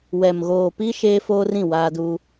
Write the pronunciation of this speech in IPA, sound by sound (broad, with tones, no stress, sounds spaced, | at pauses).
w ɛ˨ m ɣ oː˨ p i˦ ʃ eː˦ f oː˦ r ĩ˦˨ w aː˦ d u˦